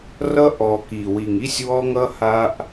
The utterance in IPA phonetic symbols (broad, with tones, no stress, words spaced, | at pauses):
rʌ˦ ʔɔ˨ ki˨wi˨ŋi˦sʲwɔ˦ ŋʌ˦ha˦ʔ